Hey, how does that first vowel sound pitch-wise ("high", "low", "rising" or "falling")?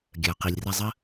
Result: low